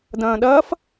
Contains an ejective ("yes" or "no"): no